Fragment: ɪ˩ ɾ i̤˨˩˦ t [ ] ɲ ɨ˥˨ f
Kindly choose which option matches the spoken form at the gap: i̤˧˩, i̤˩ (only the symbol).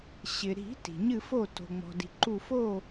i̤˩